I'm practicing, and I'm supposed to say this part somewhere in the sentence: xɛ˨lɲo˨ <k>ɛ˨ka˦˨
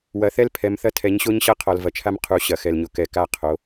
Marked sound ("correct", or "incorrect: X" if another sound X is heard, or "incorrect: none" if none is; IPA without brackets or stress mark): correct